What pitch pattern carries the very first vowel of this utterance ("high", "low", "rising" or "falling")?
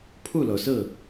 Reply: falling